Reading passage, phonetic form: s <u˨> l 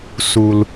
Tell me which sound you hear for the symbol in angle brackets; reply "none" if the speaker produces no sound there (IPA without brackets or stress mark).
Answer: u˨